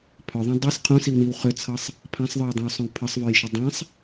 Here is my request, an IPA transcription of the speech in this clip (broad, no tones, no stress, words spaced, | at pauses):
pʰœðˤœ̃ dˤis qʰũsiwniw χʏt͡sʰɤsˤ | pʰãsˤðˤœwdˤœ̃wsˤœ̃w pʰəsˤvœjʃə dˤãsˤ